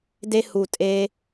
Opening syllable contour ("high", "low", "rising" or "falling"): high